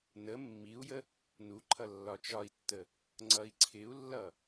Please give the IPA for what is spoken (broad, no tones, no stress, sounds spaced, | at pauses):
n ə mː i u̯ j ə | n u ǃʰ ʌ lː ɒ t͡ʃ ɒ i̯ tː ə | ŋ͡ǀ ʌ i̯ ǀʰ ɪ u̯ lː ʌ